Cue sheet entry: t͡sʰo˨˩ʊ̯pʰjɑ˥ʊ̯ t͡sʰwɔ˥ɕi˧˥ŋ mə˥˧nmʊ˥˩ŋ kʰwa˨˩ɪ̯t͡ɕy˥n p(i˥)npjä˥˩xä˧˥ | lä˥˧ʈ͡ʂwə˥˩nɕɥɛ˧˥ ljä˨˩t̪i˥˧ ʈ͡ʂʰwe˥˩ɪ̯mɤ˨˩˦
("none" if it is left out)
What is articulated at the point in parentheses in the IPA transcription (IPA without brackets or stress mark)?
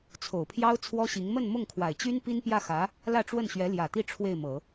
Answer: i˥